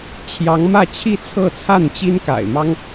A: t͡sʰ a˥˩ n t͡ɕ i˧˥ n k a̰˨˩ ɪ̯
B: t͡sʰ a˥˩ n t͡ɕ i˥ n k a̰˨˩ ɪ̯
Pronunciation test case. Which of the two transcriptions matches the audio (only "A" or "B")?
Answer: B